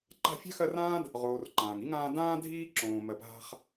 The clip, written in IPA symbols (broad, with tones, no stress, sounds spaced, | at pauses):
ǃ a̤˦ fʲ a̤˥ x ɜ˦ r ãː˥ d | ʁ oː˨ r ǃ ãː˩ ŋ i˥ ŋ ãː˦ d ãː˦ dʱ iː˦ ǁ õː˩ m ɜ˩ p ɦ a̤˦ χ